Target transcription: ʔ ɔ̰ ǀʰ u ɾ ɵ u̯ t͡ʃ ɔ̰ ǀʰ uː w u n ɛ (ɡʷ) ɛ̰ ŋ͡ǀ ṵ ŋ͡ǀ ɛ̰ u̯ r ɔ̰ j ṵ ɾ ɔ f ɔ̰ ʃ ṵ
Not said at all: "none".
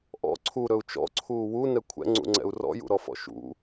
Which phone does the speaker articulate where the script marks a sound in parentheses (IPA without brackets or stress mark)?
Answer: kʷʰ